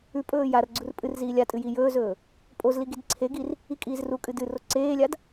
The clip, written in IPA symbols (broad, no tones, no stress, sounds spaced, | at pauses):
ʉ pʼ ɵː j a r ɡ͡ǀ u r pʼ ɨ r z iː lʲ a tʼ ɨ j i j ɵː z ɵː | pʼ o z l i ɡ i d ǀʰ e ɡ i r | i kʼ iː z r u kʼ ɨ d ɨ r o ǀ eː lʲ a d